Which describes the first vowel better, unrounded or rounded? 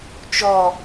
rounded